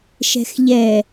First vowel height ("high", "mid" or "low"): mid